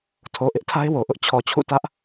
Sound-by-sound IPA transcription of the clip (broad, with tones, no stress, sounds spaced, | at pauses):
tʰ o˨ ʔ ɪ˦ ʔ tʰ a˦ ɪ̯ w o˨ ʔ ʊ˦ ʔ t͡ɕʰ ɔ˨ t͡ɕʰ ṵ˦˨ t ä˦ ʔ